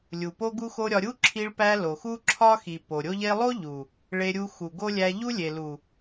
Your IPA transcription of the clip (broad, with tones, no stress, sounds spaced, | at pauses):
lʲ u˨ p o˦ ɡ u˦ x o˦ ɾʲ ɒ˧ ɾʲ u˦ ǁʰ i˧ ɭ p æ˧ l o˨ x u˦ ǁʰ ɒ˦ x i˨ p o˨ ɾʲ o˦ ʎ e˦ lˠ o˦ ʎ u˨ | ɭ e˧ ɾʲ u˧ x u˨ ɡ o˦ lʲ æ˧ ʎ u˦ lʲ e˨ l u˨